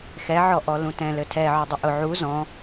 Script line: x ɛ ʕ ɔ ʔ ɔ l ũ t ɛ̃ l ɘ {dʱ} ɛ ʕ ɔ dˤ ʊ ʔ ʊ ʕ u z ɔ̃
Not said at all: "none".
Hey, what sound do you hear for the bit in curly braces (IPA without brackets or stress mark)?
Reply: tʰ